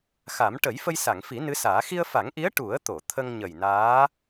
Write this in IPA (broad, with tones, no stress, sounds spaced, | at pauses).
x a˨˩˦ m ʈ ə˨˩˦ j f ə˧ j s a˨˩˨ ŋ f i˨˩˦ n ɨ˧˥ s aː˨˩˦ x i˧ ə̯ f a˨˩˦ ŋ ʔ i˧˥ ə̯ ʈ u˨˩˦ ə̯ t̪ o˨˩˨ t̪ʰ ə˧ ŋ ɲ ə˨˩ j n aː˧˥